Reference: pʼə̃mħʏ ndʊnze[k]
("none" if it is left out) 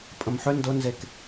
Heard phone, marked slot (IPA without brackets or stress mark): k